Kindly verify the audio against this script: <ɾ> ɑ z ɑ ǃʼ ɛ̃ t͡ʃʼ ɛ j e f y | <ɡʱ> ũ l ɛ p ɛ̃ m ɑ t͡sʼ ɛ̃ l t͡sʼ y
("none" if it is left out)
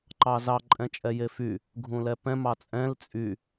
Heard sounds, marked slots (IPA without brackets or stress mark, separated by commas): ǃ, ɡʱ